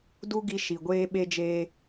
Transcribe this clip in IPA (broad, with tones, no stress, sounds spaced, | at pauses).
d u˦ ɡ i˧ ʃ i˨ ɡʷ eː˦ ɓ e˦ d͡ʒ eː˦